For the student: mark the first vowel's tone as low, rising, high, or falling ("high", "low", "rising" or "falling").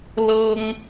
high